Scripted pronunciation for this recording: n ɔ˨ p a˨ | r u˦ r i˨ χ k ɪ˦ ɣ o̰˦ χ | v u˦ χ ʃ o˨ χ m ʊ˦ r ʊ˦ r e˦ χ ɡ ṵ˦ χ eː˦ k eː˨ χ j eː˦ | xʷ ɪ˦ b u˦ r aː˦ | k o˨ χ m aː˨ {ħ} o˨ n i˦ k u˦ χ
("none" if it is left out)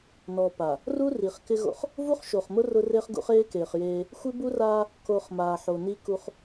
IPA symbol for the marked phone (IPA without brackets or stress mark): ħ